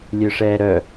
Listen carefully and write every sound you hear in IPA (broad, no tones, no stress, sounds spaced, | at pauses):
lʲ ø ʂ ɛː ɾ œ